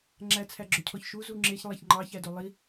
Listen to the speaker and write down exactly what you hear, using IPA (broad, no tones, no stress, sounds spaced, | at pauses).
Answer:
ŋ͡ǁ æ t͡sʰ æ ɡ͡ǁ ɵ cʰ ɔ ç ʃ u z u ŋ͡ǁ e ç lˠ æ ç ŋ͡ǃ ɑ ç æ d o lˠ i